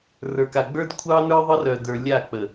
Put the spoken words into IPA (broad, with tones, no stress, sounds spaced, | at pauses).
r ə˞˨ k a˨ ɡ͡b ə˞˦ d kʷʰ ɑ˦ n ə˞˦ ðˤ ə˦ r œ˨ d ə˞˨ lʲ a˦˨ k͡p ə˨